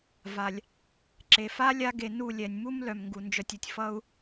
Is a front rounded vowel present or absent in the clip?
present